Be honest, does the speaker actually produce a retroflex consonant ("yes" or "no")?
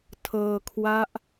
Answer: no